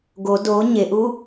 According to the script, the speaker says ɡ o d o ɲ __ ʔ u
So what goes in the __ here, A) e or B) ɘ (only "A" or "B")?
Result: A